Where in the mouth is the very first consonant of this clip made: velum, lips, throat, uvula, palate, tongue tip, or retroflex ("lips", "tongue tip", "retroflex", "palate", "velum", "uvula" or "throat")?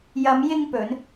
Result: palate